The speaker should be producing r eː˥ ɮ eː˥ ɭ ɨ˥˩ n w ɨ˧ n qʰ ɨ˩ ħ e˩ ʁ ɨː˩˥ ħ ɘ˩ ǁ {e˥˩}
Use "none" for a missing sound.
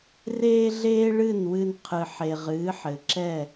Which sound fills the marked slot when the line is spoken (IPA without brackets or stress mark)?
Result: ɛ˥˩